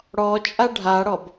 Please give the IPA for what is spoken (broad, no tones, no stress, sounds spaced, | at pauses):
ɽ ɔ t͡ʃʼ a ɖʱ a ɽ ɔ b